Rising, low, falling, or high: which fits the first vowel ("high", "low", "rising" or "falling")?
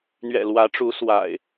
low